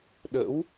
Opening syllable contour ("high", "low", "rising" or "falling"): rising